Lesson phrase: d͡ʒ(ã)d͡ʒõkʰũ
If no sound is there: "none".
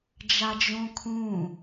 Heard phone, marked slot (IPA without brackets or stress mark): a